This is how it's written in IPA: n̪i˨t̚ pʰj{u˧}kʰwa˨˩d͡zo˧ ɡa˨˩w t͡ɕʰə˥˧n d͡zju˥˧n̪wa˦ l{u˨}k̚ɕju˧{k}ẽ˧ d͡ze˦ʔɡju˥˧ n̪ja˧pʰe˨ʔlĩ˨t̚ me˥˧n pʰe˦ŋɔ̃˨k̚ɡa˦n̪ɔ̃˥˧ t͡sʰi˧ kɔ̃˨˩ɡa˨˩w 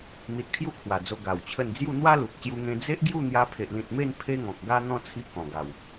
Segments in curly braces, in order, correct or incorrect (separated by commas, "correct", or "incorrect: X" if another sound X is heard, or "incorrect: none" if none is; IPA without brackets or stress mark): incorrect: u˦, correct, incorrect: ŋ